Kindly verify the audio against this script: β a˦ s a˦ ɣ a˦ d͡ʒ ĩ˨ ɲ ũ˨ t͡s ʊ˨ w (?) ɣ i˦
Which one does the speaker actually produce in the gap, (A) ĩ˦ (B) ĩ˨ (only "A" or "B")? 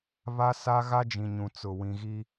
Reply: B